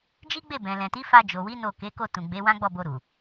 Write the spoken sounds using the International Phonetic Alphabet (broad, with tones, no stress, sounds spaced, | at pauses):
d͡ʒ i˦ ɡ͡b e˦˨ b ɛ̃˨ l ɛ̃˨ t i˨˦ f a˧ d͡ʒ o˨ w i˨˦ n o˦˨ k e˨˦ k o˦˨ t ũ˨ ɡ͡b e˨˦ w ã˦ ɡ͡b ɔ˦˨ b o˧ ɾ u˨